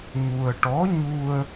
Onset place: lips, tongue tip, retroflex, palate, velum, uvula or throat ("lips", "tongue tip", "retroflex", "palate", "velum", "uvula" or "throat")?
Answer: palate